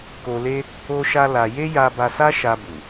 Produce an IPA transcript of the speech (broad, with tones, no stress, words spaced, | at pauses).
ko˧le˦ | o˦ʃa˦la˧ je˦ja˧ ba˧sa˦ ʃa˧bu˨